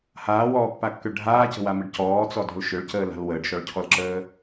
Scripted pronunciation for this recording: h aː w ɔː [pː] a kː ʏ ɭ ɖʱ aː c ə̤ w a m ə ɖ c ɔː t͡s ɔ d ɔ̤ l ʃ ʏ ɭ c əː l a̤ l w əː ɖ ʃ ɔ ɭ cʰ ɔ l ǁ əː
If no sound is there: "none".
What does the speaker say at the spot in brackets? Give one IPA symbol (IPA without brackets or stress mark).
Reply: pː